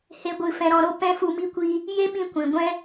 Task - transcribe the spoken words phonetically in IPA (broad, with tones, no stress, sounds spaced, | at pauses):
h e˧ ɡʷ ɨ˦˨ f ɛ̃˧ ɾ ɔ̃˧ ɾ o˦ p ɛ̃˦ f u˧ m i˦ kʷ i˦ | j e˦ ɓ ĩ˧ kʷ ĩ˨ ɡʷ ɛ̃˦